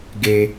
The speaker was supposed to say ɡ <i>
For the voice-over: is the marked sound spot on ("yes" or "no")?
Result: no